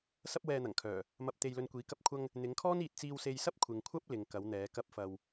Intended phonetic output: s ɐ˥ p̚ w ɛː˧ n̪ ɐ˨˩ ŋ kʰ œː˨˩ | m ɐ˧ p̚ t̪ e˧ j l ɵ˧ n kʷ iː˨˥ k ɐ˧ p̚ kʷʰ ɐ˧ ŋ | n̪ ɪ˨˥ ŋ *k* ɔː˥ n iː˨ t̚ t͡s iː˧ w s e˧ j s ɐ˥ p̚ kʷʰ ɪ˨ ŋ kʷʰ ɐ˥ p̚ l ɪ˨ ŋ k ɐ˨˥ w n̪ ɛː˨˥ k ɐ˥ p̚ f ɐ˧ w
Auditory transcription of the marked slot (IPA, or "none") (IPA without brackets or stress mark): kʰ